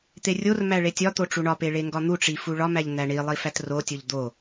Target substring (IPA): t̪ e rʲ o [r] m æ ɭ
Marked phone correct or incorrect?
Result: correct